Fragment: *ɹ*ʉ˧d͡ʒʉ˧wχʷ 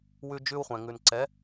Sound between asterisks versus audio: incorrect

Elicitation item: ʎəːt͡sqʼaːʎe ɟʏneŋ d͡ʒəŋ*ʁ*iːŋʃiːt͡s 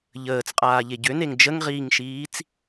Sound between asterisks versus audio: correct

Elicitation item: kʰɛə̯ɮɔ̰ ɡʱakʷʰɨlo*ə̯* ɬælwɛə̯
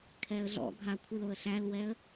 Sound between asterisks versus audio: correct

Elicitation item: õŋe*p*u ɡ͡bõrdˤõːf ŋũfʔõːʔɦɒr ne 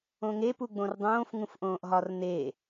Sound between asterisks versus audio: correct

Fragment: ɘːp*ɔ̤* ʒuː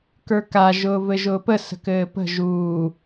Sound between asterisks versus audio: incorrect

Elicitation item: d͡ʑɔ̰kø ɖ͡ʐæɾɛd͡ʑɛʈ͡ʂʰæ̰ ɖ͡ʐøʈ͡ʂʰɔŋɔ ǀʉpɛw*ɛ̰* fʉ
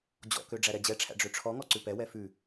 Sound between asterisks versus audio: incorrect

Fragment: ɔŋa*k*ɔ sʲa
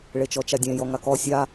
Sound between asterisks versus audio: correct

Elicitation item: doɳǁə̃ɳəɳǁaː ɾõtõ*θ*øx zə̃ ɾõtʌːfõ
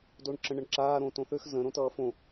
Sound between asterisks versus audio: correct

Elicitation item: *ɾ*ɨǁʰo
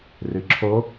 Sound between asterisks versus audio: incorrect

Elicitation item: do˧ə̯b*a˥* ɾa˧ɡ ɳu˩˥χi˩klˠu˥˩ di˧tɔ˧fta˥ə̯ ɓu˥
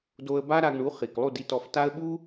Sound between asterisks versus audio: correct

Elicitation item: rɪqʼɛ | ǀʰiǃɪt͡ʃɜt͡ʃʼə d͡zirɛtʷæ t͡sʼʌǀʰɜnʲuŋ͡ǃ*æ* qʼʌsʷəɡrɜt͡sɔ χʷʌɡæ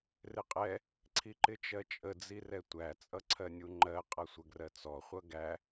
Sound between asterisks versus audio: incorrect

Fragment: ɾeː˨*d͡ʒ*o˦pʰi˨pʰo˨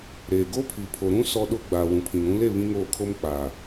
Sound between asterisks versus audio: incorrect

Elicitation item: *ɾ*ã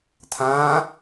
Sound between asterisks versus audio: incorrect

